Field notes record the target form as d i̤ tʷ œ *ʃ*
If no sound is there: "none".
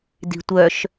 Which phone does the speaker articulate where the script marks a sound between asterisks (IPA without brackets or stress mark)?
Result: ʃ